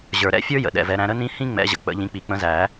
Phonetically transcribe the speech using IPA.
ʑ ə˞˨ ɾ ɛ̰˥ fʲ ə˞˥ j ə̰˨ ɗ ɛ̰˨ v ɛ˨˦ ɾ æ̃˨˦ ɾ ə˥ n ĩ˥ h ĩ˥ ŋ͡m ɛ̰˨˦ ʑ ə̰˨ k͡p ə̰˨˩˦ ʎ ĩ˨˦ k͡p i˨ k͡p ə̃˨˦ z æ˨˩˦

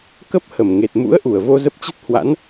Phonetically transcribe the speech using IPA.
k ə˦˥ p̚ h ə˧˩ m ŋ e˨˩ t̚ m ṵ˧˥ ə̯ ʔ u˧˩ ə̯ v o˧ z ə˦˥ p̚ t͡ɕ ə˦˥ t̚ h w a̰˧˥ n

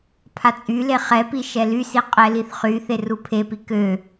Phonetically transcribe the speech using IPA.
pʰ a t͡sʼ y l e χ ɛ p i ʃ ɛ l y s i qʼ ɛ l i θ χ y θ e r u pʰ e p i k ø

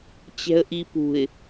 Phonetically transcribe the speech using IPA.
t͡ɕ ɛ̤ ə̯ ʔ i p ṳ ɪ̯

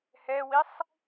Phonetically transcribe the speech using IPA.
h ɛ w i sˤ

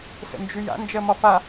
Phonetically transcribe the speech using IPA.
s ə̰ n d͡ʒ ʉ j a̰ n d͡ʒ ɜ m ɒ f a

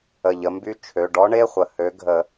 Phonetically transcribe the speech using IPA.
ə˧˩ ʎ ə˨˦ m b y˦˥ t͡ʃʰ ø˩˧˩ ɖ ɔ˦˥ ɳ e˧˥˧ χʷ ə˩˧˩ h ø˨˦ ɡʱ ə˨˩˦

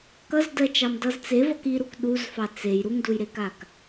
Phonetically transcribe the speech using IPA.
k ʌ z d ɜ t͡ʃ ɑ m d ʌ z t͡s e v ʌ k i ɾ u k ɗ u z f ɑ t͡s e j ɾ u ŋ d u j ɾ e k a k

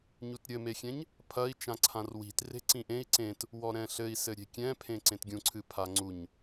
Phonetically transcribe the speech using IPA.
ɲ u t ɾʲ ɘ m e xʲ ɛ̃ ɲ | pʰ ɐ i̯ t͡ʃ ã ǀʰ ã r w i̤ t r e̤ ǀ ĩ ʔ ẽ i̯ ǀ ẽ t | w ɔ ɾ ɛ̃ ɬ ɘ i̯ s ɘ ɾʲ e̤ kʲ ɛ̃ pʰ ẽ ǀ ẽ t ɡʲ ũ ǀʰ ɨ pʰ a ŋ͡ǀ u ɲ

